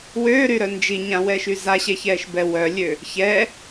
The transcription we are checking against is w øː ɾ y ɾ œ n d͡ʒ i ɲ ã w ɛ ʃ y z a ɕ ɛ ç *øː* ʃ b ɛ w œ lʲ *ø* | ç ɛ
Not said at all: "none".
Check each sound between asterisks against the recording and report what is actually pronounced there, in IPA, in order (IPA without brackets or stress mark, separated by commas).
ɛː, ø